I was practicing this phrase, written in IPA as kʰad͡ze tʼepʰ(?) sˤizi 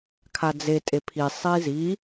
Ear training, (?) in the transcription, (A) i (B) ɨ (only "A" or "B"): A